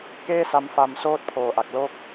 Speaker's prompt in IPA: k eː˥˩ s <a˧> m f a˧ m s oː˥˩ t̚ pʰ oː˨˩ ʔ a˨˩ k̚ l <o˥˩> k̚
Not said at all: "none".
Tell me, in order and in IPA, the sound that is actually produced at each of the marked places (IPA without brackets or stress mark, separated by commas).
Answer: a˧, oː˥˩